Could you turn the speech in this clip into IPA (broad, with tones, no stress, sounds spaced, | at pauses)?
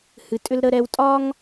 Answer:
h ɨ˨˦ tʼ ʏ˦ l ɾ ə˦ ɾ ɛ˦ w tʼ ɒ˦ ŋ